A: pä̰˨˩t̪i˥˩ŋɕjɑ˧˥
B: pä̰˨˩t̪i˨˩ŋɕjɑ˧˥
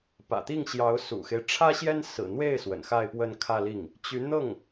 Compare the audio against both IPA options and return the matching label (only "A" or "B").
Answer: A